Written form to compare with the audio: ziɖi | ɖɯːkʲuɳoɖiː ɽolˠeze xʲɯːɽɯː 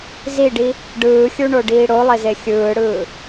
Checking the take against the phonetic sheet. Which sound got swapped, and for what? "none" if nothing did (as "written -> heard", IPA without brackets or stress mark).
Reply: kʲ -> xʲ